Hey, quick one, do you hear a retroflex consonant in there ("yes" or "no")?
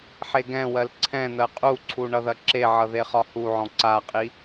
yes